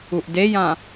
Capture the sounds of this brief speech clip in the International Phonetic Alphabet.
u ʔ d e j ã

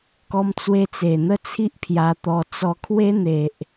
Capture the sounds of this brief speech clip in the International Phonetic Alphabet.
k ɔ˧ m t͡s w e˧ t͡s e˨˩ n̪ ə˦ t͡sʰ i˦ ʔ pʰ j a˧ t̪ ɔ˧ t͡s ɔ˧ kʰ w e˦ n̪ e˨ ʔ

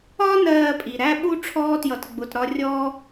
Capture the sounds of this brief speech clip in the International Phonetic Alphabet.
ɒ˦ n ɜː˨ pʼ i˩ ɾ æ˥ ɓ u˥ ʈ͡ʂʰ ɔː˥ t j ʌ˨ t ɡ͡b ʊ˩ t ɾ ɒ˦ rʲ ɔː˥

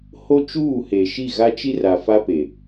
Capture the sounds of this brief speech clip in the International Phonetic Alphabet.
h o˦ t͡ʃ uː˦˨ h e˨ ʃ i˦˨ ɣ a˦ t͡ʃ i˦ r a˨ f a˦ p e˨

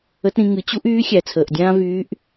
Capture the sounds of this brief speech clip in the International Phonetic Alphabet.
ə˧˥ t ɾ ĩ˩˧ ŋ ɨ˩˧ t͡ɕ u˥ ʔ yː˧˥ xʲ æ˩ t͡sʰ əː˩ ʔ dʲ ãː˥ v yː˧˥ ʔ

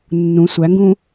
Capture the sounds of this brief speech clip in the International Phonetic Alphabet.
nː ũ sʷ æ ŋ ɡ ũː

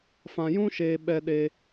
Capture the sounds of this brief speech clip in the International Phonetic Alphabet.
f ã˧ j ũ˦ ʃ eː˧ ɓ ɛ˦ ɗ e˦

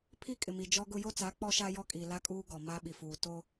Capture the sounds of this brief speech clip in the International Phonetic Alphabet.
pʰ i˦ kʼ ɪ˨ m i˨ d͡ʒ ɔ˦ ɡ ʊ˦ j o˦ t͡s a˨˦ k͡p ɔ˦ ʃ a˦ j ɔ˦ kʼ iː˨ l a˦ kʼ uː˦ ɡ ɔ˨ m a˦ ɓ i˨ f uː˨ t o˦

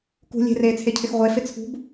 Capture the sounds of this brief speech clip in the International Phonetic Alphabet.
k ṳ lʲ e̤ r eː t͡sʰ e cʰ ɪ x ʁʷ e f ɪ t͡sʰ ṳ b

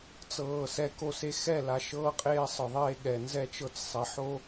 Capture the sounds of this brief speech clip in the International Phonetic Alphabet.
t͡s ɤː˨ s ɛ˨ k o˨ s e˨ x ɛ˦˨ l a˨ ʃ ɤː˦ qʼ eː˦ sˤ ɯ˨ ðˤ eː˦ ɠ ɛ˨ n z ɛ˦ t͡ʃ ɤ˦ t͡s sˤ ɛ˨ ħ o˦

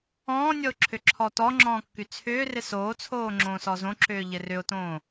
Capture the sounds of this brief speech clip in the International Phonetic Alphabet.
ɔ̃ː nʲ ɔ ʊ̯ ǁʰ ʏ ǁʰ ɔ t ɔ ŋ͡ǁ ɔ̃ː kː y t͡sʰ ʏː r ɪ s oː t͡sʰ oː ŋ͡ǁ õː s ɔ z õ ǁ ʏː ʎ ɪ r ʏ ʊ̯ t õː

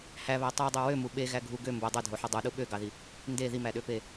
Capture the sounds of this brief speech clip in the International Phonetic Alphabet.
h æ β æ tˤ u dˤ u w ø m u ɓ e ɣ æ ɡʱ u ɡ ø m b o dˤ e dʱ o ħ u dˤ u ɗ u ɓ ø ɡ ɑ ð i | n d e ð i m æ ɗ ø p e

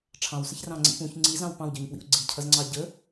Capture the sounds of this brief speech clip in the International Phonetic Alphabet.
ʈ͡ʂʰ ɑ̃ w s ə ç r ɑ̃ ŋ͡ǀ ḭ p ũ ç ŋ͡ǀ i z ɑ̃ w p ɑ̃ w ɟ ə˞ ɲ p w ḭ ʊ̯ ɡ͡ǀ i cʰ ʌ z ŋ͡ǀ ɑ ɟ ə

